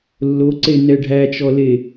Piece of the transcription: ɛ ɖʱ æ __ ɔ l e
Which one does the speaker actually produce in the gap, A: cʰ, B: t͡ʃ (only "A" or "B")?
B